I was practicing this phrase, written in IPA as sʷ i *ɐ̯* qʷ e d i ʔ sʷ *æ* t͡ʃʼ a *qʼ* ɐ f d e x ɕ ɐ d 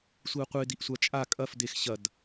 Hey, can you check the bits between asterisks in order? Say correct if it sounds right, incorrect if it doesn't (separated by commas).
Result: correct, incorrect, incorrect